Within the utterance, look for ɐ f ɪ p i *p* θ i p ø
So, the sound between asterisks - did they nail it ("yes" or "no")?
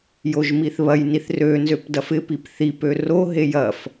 yes